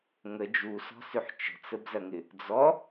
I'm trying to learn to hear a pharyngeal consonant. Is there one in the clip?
yes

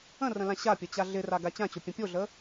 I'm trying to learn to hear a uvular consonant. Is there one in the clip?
no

